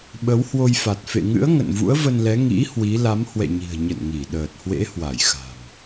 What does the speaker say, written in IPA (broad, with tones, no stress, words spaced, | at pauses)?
ɓə˨˦whwo˧jfa˨˩t̚ fḛ˧˨ŋɨ̰˧˥ə̯ ŋə̰˧˨nvṵ˧˥ə̯və˧nlɛ˨˦ ŋḭ˧˥ hwi˨˦ la˨˦m hwɛ̰˧˨ɲi̤˨˩ə̯ ɲə̰˧˨nŋi˧˩ ɗəː˨˩t̚hwḛ˧˥hwa˧˩jxa̤˨˩m